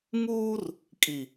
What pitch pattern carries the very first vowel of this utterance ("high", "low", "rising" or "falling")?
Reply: high